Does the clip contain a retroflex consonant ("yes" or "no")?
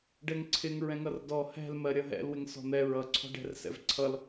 yes